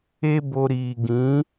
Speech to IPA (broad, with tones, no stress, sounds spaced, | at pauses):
e˦ b o˧ ɾ iː˨ ɡ ĩ˨˦